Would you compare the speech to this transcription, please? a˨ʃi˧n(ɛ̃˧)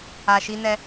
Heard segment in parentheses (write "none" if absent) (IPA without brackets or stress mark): ɛ˧